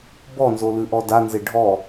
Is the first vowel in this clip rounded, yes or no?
yes